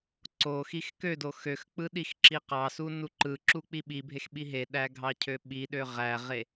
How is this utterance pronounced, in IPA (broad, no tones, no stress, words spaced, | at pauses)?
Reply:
ǀo xixkødo xøxk͡pɯ ɗixǁiqɑsu nuǃɯǁu k͡piɓibʱex ɓiɦeɗæ ɡʱɑcʰøɓiɗø ʁæʁe